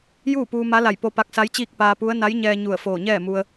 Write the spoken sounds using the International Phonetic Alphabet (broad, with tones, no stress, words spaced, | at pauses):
juː˥˨puː˧ma˧˥la˧˩j po˧pa˧k̚sa˧˥jt͡ɕiː˥˨k̚ paː˧pu˧˥ə̯ na˧˥jɲɛː˧ ɲu˧˩ə̯foː˧˩ɲɛː˥˨ mu˧ə̯